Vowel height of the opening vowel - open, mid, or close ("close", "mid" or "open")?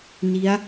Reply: close